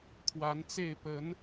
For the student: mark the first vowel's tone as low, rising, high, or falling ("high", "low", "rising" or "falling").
rising